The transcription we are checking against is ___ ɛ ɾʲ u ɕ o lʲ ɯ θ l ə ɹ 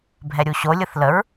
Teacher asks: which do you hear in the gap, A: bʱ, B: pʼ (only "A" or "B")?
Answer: A